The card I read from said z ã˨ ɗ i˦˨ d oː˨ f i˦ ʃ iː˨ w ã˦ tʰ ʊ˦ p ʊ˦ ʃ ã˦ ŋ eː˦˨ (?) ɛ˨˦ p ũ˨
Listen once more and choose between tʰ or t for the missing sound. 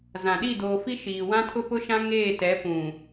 t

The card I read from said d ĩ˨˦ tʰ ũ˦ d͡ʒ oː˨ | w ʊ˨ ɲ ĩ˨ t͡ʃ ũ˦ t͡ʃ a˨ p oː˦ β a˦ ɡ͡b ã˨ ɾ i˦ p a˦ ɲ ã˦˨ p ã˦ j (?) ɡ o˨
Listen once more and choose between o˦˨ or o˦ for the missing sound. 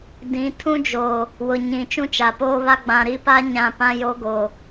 o˦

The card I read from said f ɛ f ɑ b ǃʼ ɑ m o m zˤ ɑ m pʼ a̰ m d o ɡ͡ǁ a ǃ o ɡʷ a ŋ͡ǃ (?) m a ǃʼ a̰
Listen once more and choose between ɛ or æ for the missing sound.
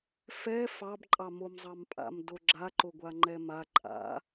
ɛ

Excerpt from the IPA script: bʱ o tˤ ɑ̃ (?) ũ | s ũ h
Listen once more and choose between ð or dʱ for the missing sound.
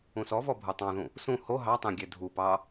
ð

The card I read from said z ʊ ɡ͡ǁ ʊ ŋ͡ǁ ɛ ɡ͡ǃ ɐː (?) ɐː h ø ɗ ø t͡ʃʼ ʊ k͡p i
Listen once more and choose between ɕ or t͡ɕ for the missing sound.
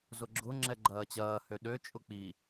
t͡ɕ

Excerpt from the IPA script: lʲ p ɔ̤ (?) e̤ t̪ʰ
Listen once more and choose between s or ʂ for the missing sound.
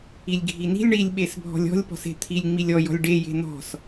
s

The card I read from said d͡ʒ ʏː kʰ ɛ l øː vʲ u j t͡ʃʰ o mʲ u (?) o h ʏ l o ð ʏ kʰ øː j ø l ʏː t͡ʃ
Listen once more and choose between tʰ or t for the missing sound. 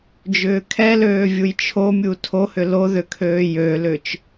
tʰ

